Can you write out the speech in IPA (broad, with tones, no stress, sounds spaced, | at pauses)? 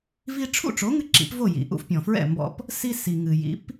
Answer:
v i˧ ʈ͡ʂʰ ṵ˥˩ ʈ͡ʂ o˩˥ ŋ ɨ˧ ǁ ḭ˩˥ p v o˥˩ j ḭ˩ ʔ ṵ˧ f pʲ ɔ̃˩ f ɹ ɛ̰˥˩ m b ɔ̰˧ p | s i˧ s i˩ ŋ ɨ˩ j ḭ˩˥ p